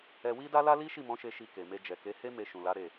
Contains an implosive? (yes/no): no